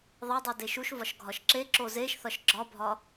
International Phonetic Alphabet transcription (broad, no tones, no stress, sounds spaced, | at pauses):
ðˤ e dˤ u d e ʃ u ʃ v ɒ ʃ ɡʱ ɒ ʃ ǁ e ǁ o z e ʃ θ ɒ ʃ ɡ͡ǁ ɒ bʱ ɒ